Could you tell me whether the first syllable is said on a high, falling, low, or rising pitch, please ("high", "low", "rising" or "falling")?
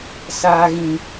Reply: high